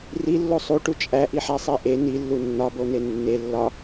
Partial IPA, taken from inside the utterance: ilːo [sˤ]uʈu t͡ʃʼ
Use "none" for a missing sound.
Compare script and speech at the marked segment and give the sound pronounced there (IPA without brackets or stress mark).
sˤ